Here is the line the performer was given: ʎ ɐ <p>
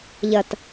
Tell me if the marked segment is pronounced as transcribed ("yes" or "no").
no